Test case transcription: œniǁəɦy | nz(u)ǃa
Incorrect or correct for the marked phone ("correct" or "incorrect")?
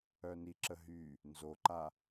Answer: incorrect